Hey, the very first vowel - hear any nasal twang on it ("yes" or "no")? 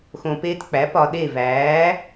yes